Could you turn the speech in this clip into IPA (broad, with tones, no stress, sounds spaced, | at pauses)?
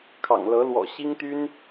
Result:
kʰ ɑ̰˨˩ ŋ l ɤ˧˥ l w ɔ̰˨˩ ɕ i˥ ŋ t̪ y˥ n